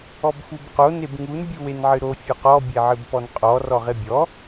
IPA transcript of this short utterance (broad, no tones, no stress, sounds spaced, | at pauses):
ɔ b f u b q o n e b ŋ u n bʲ u w e n ʕ ɨ ɾ o fʲ ɔ q ɔ bʲ e ʕ ɨ b p ɔ n qʼ ɔ r ɔ ʁ e bʲ ɔ